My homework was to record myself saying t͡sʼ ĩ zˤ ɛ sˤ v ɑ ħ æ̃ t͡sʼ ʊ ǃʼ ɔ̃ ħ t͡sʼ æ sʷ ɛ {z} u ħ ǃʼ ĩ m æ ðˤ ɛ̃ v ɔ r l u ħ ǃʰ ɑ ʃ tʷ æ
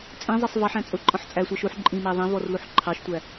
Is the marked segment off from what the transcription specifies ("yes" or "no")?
yes